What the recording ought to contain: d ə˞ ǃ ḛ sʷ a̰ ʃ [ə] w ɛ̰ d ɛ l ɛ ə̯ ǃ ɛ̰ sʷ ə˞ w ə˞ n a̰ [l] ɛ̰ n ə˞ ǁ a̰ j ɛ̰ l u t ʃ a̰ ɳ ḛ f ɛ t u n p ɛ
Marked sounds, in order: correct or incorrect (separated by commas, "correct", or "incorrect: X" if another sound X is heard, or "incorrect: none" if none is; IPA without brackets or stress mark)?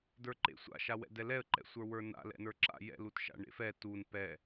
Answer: incorrect: a, correct